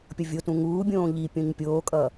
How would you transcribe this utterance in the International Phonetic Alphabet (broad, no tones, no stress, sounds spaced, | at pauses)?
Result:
pʲ ʌ vʲ o t ũ ŋ uː bʲ õː ʎ i pʲ õ ɲ pʲ oː kʼ ʌ